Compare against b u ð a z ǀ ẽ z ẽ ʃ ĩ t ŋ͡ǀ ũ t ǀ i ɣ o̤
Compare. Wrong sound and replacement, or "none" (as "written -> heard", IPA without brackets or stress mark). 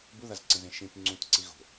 none